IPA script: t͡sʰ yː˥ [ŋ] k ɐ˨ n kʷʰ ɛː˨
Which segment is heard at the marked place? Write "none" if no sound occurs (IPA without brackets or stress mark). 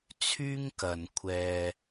ŋ